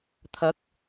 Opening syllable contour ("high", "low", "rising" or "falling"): rising